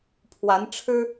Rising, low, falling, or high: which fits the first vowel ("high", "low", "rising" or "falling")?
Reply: rising